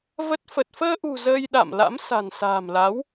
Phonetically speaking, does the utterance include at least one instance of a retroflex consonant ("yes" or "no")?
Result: no